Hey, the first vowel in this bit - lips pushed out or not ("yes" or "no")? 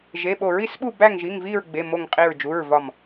no